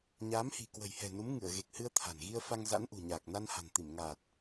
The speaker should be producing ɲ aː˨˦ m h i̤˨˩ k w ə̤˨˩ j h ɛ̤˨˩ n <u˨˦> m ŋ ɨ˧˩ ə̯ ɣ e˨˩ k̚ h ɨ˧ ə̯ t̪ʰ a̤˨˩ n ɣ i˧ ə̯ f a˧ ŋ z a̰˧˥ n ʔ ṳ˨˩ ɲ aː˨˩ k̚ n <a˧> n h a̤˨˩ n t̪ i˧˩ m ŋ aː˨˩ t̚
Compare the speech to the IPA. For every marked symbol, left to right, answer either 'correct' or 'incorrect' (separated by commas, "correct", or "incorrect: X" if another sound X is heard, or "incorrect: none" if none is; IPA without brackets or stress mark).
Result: correct, correct